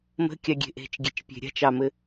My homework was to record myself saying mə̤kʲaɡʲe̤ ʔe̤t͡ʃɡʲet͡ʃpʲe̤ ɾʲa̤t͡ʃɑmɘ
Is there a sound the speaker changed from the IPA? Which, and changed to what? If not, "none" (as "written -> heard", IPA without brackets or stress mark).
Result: none